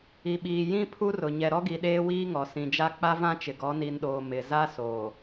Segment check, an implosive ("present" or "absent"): present